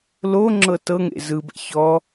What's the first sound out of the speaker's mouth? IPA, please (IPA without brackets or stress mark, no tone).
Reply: l